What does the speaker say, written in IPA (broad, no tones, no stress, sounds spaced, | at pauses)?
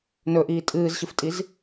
n ɵ ʔ iː tʼ ɨː z ɕ ɨ f tʼ i z